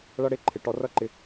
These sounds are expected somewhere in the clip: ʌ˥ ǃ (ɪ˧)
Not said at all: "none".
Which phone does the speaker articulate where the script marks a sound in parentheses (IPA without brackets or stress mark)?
ɪ˧